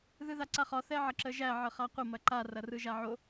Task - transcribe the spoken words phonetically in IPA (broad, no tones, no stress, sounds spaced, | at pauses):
ð ɯ ð a ǀ a χ ɒ θ ɛ ʕ ɐ ǁ ə ʒ æ ʕ ə χ a qʷ ə m ɐ ǃ a r ɐ r ɯ ʒ a ʕ o